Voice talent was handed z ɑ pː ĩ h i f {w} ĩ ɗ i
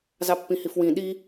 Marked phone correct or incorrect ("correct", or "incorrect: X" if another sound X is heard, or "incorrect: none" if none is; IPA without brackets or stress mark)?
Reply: correct